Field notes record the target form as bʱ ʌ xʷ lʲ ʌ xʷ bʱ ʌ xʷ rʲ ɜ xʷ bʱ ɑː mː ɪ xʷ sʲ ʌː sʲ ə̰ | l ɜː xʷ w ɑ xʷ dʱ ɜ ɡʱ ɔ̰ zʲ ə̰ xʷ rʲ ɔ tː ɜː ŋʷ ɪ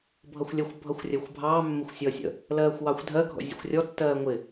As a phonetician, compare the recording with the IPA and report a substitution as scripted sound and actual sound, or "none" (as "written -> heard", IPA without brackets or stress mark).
none